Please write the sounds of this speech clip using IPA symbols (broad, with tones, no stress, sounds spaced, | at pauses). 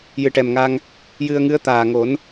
j ɨ˨˩ ʈ ɛ˨˩ m ŋ a˧ ŋ | j ɨ˧ ə̯ ŋ ɨ˧˥ ə̯ t̪ aː˨˩ ŋ o˨˩˦ n